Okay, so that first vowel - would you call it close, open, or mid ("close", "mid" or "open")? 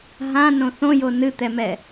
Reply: open